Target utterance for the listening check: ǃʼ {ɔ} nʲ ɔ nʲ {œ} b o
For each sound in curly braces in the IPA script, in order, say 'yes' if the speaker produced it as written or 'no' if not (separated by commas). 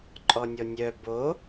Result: yes, yes